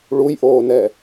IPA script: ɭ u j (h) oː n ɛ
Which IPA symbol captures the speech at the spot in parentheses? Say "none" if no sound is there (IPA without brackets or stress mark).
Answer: ʔ